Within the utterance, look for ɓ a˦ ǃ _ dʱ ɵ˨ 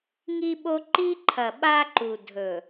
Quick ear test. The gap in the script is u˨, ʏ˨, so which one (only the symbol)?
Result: u˨